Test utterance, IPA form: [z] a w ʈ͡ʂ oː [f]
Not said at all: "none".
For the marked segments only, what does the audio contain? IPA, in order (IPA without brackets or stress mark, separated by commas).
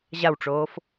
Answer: ʑ, f